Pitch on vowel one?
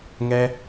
high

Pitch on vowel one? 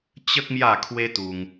high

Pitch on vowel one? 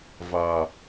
low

